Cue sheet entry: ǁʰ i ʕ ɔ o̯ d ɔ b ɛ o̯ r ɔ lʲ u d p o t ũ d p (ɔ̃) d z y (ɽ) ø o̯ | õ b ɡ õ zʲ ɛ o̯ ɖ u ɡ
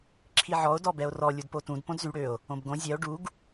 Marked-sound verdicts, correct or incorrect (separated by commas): incorrect, correct